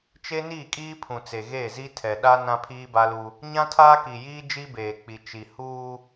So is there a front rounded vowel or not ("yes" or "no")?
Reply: no